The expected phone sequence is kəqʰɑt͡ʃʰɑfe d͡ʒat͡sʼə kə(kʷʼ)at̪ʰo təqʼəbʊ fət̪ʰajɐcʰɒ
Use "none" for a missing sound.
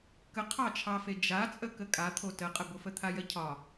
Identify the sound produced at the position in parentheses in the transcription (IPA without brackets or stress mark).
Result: kʼ